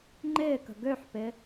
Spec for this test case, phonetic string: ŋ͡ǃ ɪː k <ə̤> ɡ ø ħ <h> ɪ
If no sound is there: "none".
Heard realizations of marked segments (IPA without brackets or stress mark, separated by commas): ə̤, p